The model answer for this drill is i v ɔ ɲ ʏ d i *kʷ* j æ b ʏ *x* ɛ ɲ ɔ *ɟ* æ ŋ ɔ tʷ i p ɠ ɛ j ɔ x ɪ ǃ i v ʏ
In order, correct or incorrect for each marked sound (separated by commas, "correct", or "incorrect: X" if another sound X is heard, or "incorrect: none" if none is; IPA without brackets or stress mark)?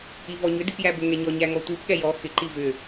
incorrect: p, incorrect: ŋ, incorrect: ɲ